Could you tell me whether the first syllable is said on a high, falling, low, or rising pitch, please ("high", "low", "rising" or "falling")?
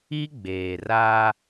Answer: high